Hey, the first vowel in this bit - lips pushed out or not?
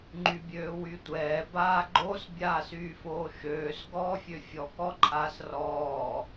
yes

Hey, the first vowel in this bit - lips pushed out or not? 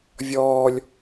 yes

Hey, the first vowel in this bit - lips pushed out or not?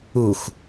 yes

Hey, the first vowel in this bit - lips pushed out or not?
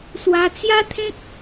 no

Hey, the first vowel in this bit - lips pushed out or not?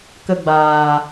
no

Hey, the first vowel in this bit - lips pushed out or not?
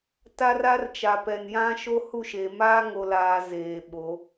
no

